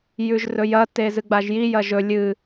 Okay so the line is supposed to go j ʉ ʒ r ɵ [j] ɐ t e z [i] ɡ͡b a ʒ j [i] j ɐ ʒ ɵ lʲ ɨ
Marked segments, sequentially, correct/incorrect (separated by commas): correct, incorrect, correct